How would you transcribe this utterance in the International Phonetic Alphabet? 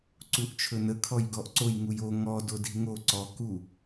ǀ u ʔ t͡ʃʰ ɵ n ə kʰ ɔ j ɡ ɔ ʔ ǀ o j ŋ u j o ŋ ɔ d o d i̤ ŋ o ǀ ɔ k u

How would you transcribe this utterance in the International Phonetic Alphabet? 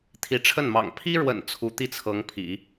t̪ʰ i˧˥ ʈ͡ʂʰ ə˥˩ n m ɑ̰˨˩ ŋ pʰ i˥ ɻ w ə̰˨˩ n t͡sʰ u˧˥ t̪ i˥˩ t͡sʰ ɤ˧˥ ŋ pʰ ḭ˨˩˦

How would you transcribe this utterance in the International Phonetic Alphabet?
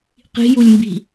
q i̤ j u lʲ m b i̤

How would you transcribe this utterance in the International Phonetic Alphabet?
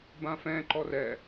b ã f ɛ̃ ǃ ɔ r ɛ

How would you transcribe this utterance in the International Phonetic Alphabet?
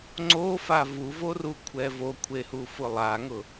ŋ͡ǀ o f a v u v o r u kʷʰ ɛ v o kʷʰ e h u f ʊ lˠ a ŋ ʊ

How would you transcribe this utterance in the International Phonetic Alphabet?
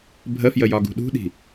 bʱ ə f j ə j ɒ ɡ ṳ ɗ ṳ ɗ i̤

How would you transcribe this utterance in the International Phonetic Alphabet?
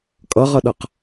kʼ ʌ ʁ ʌ ɗ ʌ q

